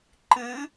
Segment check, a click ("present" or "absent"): present